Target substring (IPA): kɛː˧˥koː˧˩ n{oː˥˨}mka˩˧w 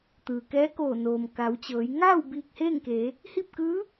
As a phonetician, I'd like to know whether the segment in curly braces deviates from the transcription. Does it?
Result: yes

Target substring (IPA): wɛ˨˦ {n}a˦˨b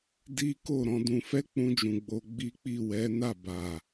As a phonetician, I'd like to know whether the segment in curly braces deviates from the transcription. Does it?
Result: no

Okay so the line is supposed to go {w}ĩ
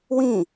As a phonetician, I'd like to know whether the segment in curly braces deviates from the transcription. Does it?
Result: no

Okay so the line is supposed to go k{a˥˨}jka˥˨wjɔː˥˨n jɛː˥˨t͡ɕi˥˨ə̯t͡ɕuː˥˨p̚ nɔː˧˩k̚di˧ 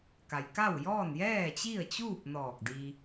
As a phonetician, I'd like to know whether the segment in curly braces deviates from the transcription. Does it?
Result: yes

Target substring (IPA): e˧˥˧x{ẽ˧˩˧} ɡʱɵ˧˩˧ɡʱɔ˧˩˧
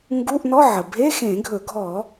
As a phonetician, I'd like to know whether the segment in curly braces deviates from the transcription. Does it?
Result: no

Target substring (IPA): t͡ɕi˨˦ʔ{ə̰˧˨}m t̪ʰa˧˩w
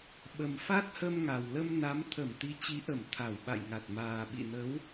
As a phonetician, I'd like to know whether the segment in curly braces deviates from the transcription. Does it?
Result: yes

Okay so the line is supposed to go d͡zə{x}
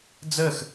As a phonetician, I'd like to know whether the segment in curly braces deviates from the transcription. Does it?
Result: no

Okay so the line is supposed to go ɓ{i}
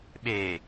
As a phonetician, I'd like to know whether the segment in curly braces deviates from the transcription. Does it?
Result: yes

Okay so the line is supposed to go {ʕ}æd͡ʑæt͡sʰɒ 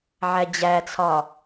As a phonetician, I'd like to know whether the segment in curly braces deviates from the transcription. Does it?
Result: no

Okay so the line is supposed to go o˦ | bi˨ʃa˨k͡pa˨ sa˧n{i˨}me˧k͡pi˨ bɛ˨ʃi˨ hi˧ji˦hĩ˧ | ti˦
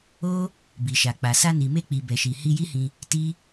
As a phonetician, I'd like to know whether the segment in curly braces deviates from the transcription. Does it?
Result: no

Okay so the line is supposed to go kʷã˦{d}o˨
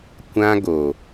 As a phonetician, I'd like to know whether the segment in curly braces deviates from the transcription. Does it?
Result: yes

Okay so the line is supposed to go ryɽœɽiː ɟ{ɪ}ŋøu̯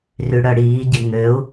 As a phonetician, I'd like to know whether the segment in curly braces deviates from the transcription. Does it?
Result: no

